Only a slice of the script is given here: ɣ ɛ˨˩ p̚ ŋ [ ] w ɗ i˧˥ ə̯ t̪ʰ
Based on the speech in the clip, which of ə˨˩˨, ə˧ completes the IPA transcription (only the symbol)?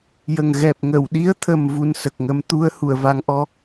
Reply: ə˨˩˨